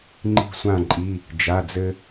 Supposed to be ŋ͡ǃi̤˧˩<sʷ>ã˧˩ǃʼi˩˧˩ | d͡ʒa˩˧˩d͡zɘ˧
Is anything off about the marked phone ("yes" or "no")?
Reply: no